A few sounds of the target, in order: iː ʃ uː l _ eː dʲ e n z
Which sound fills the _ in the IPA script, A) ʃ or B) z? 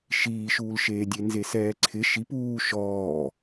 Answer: A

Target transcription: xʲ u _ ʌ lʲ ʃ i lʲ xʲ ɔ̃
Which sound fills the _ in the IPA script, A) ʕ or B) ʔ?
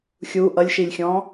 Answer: B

